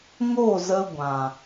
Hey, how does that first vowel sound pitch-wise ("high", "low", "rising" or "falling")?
falling